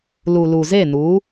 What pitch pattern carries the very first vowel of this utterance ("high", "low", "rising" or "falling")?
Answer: low